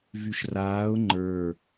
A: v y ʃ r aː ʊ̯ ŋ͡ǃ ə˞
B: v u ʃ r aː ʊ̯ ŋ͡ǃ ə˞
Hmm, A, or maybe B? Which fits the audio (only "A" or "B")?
A